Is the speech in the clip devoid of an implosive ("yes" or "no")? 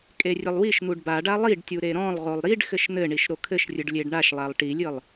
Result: yes